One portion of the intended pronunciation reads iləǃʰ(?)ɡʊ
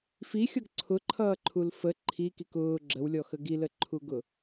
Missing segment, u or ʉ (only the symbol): u